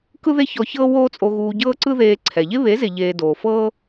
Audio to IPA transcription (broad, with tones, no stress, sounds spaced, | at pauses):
k ɯ˦ ð e˦ ç ɔ˧ ç ɤː˦ w oː˦ t͡sʼ o˧ ɣ uː˧ ɟ ɤː˦ ǀ ɯ˦ ð eː˧ ǀʰ ɛ˨ ʎ e˦ β e˨˦ z e˨ ʎ eː˨ d oː˨ f ɤː˦